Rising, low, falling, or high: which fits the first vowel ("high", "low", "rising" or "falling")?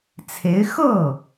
rising